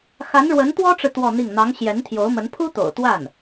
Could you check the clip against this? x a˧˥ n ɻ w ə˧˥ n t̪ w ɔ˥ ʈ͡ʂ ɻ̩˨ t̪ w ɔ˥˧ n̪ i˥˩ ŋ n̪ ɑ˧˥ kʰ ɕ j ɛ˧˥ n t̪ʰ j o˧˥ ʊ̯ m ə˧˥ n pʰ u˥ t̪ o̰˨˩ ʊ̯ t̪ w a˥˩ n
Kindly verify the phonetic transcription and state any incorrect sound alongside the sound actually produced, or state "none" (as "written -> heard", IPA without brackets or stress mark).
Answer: kʰ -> ŋ